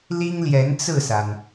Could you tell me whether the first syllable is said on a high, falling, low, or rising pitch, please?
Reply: high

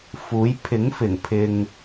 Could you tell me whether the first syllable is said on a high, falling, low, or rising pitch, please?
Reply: rising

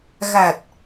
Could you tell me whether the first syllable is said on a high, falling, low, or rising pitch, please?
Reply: low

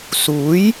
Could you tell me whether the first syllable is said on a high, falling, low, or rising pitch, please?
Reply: rising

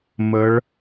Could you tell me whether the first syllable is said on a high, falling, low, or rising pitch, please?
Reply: rising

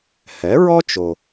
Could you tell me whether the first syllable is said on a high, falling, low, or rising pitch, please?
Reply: rising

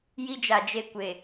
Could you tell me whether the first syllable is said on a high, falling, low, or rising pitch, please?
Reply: high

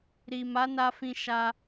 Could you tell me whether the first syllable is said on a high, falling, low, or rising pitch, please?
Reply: low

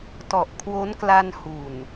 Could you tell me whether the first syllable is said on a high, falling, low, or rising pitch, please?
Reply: low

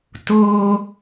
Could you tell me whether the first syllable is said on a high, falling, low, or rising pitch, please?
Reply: high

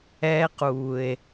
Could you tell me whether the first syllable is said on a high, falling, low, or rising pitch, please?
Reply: high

